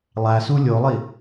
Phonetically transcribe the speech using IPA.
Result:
lˠ æ s u lʲ o lˠ i

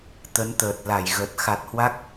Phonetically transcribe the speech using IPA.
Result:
t̪ ə˨˦ n t̪ əː˨˩ t̚ l a˧˩ j ɣ ə˨˩ t̚ x a˨˩ t̚ h w a˦˥ k̚

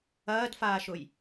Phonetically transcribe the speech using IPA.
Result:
ɐː d f aː ʃ ʊ j

